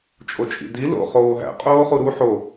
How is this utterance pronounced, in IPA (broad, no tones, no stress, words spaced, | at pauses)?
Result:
t͡ʃʼot͡ʃʼḭdi lo̰ χoːɦæ̰ qʼoːχuɾu ħo